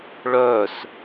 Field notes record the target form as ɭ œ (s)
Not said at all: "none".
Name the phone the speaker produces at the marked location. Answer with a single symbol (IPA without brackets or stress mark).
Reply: s